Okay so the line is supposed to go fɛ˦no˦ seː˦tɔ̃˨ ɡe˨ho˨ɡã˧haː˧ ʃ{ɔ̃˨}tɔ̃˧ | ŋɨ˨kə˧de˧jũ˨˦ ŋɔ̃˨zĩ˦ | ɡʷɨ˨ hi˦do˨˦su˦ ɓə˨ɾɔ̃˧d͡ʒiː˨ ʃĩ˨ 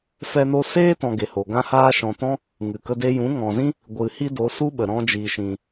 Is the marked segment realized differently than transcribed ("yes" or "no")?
no